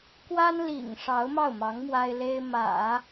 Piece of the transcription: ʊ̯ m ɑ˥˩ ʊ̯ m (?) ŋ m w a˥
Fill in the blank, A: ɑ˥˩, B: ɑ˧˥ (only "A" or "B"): B